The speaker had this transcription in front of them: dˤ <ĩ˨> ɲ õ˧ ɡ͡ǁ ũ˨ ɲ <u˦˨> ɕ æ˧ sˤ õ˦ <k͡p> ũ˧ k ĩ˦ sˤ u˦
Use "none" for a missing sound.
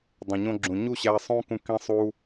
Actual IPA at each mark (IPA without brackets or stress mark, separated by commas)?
ẽ˨, u˦˨, k